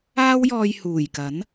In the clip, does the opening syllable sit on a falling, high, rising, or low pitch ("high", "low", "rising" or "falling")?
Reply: high